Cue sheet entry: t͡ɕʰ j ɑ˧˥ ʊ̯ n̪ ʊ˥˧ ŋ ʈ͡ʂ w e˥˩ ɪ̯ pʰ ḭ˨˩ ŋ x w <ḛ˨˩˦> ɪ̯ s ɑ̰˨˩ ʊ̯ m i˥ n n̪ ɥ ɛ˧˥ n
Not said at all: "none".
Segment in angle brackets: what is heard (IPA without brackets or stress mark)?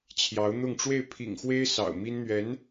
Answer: e˥